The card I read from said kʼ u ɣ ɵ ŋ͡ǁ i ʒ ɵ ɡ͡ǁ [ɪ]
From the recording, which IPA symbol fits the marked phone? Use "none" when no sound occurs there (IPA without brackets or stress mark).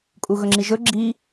i